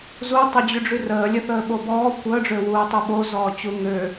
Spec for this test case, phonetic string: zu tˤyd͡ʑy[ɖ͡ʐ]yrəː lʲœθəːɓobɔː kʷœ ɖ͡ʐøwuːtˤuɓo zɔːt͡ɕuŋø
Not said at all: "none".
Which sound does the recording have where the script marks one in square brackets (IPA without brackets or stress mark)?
ɖ͡ʐ